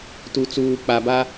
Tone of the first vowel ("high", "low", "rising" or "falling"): low